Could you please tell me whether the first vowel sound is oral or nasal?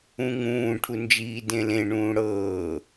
nasal